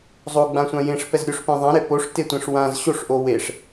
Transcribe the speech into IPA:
zˤ o ɡ͡b ã sʷ ã j ẽ ʂ p ɛ z ɾʲ o ʂ p ẽ ðˤ ã ɾ e p o ʂ t e tʷ ẽ ʂ w ã z ɕ o ʂ ʔ o w e ʂ

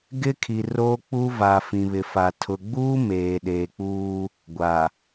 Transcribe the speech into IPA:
ɡ ɪ˦ kʰ i˨ r oː˦ k͡p u˦ v a˨ f ĩ˨ β ɪ˨ f a˨ tʰ ʊ˨ ɡ͡b uː˦ m eː˨ ɗ eː˨ k͡p uː˦ | ɡʷ a˨

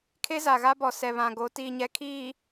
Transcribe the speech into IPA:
kʰ e˦ z a˨ ɣ a˦ b ɔ˨ s ɛ˨ β ã˨ ɡ o˨˦ t iː˨ ɲ ɛ˨ kʰ iː˨

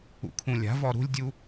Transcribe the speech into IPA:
ṵ kʰ ũ lʲ a̤ v ɔ ɾ ṳ lʲ dʲ u

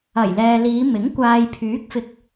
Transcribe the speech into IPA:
ɐ˨˩ j l ɛː˨ l iː˨˧ m ɪ˨˥ ŋ kʷ aː˨ j pʰ yː˨˥ k̚ f ɪ˨ k̚

